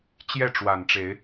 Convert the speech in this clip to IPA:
t͡ɕjɛ˥˨ʈ͡ʂwa˨˩nʈ͡ʂe˨˦ɪ̯

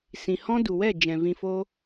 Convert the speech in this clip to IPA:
sĩ˨hɔ̃˦ du˨wɛ˦˨ d͡ʒɛ̃˨vĩ˧foː˦

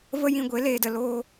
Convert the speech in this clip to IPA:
və˦ jĩ˧ɡʷe˨˦ leː˨də˨ loː˧

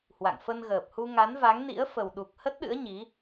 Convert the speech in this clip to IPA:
hwa̰˧˨ŋ fə˧nɣəː˨˩p̚hu˧ ŋa˨˦nva˨˦ŋnḭ˧˥ə̯ fə˨˩wɗu˨˩k̚ hə˦˥t̚ɗɨ̰˧˥ə̯ ɲi˨˦

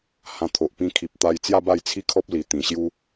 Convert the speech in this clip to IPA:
hã˧t̪ʰo˨ʔ pĩ˧kʰi˨p̚t̪a˧jt͡sja˥˧ ba˥˧jt͡sʰi˦kʰɔ˦p̚li˨˩ t̪ĩ˨˩ɕju˦

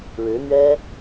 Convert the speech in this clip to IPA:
ɻɻ̩˧˥n̪ɥɛ˥

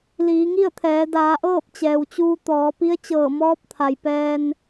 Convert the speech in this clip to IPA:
liː˩˧ŋi˥˨ə̯t̪ʰɛː˩˧ daː˩˧ʔɤː˥˨p̚ t͡ɕɛː˩wt͡ɕuː˧t̪ɔː˩˧ pi˧˥ə̯t͡ɕɤː˧˩mɔː˧˥p̚ t̪ʰa˩jpɛː˧n

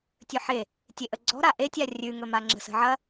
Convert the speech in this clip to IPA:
tʲɵħe | tʲeʔəɡ͡ǀɔ̤ ɾaʔetʲa rʲʉŋɵmaŋ͡ǁə̤ sə̤ʕɐ

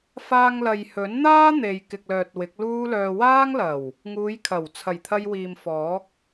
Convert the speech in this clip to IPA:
faː˧ŋlɐ˨jhɵ˨˥nn̪aː˥ n̪e˨jkɪ˨k̚lœː˨t̚ wɪ˨˥k̚luː˥lœː˧ waː˥ŋlɐ˨˩w | ŋuː˨˧jkʰɐ˨˩w t͡sʰɐ˨˩jt̪ʰɐ˧jwiː˨m fɔː˨˥k̚

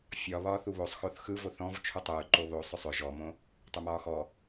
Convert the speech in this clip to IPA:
fʲɒ βɒːθuβosˤ xoθxɯ voθɔ̃v t͡ʃʰutˤɯː ǃoβo sˤʏsˤʏ ʒɔmõ | tˤʏmɒːxɔ

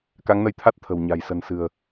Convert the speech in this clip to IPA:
ka˨˦ŋnə˧jt̪ʰa˦˥t̚ t̪ʰə̤˨˩wɲa̤˨˩j sə̤˨˩n sɨ̤˨˩ə̯

